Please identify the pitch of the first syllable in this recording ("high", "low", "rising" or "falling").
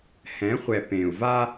rising